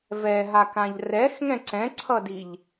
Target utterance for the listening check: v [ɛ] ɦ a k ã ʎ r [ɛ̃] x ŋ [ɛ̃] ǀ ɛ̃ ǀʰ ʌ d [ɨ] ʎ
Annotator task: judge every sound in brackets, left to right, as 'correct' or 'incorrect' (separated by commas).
correct, incorrect, correct, incorrect